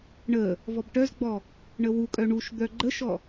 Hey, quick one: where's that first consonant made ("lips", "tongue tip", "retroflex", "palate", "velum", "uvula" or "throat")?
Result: retroflex